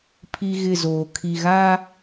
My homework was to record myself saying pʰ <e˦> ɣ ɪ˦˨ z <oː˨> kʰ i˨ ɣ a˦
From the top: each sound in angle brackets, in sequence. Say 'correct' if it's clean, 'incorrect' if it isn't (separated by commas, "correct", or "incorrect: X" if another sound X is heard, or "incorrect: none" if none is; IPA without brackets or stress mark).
incorrect: i˦, correct